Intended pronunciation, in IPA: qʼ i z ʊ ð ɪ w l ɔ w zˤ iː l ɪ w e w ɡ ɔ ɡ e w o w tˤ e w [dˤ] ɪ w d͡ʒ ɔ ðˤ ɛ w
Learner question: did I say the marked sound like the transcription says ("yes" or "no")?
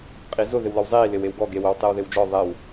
no